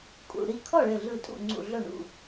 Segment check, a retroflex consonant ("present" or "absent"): present